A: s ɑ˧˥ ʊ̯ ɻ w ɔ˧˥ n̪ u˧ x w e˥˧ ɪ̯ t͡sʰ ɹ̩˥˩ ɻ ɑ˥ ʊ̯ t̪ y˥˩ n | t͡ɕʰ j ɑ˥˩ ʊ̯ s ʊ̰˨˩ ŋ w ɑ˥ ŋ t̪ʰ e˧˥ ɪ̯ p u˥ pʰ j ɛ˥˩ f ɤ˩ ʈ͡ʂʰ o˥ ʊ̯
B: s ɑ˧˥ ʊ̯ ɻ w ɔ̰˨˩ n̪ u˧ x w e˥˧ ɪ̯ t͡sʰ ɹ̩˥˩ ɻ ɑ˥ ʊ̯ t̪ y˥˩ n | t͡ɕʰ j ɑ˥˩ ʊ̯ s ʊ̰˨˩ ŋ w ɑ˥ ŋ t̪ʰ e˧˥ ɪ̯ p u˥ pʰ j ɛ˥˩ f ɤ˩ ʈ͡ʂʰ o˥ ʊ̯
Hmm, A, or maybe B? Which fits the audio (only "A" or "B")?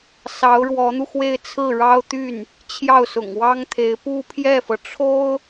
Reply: A